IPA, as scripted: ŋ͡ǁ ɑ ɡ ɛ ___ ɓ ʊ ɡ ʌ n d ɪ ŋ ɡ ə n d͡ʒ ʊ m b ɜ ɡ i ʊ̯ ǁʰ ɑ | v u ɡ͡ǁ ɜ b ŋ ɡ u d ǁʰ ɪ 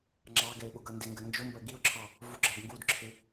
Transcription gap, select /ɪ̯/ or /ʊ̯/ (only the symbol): ɪ̯